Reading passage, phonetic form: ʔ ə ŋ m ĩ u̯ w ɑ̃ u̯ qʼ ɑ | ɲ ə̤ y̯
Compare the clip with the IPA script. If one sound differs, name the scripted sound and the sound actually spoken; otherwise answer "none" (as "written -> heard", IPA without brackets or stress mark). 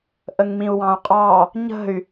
none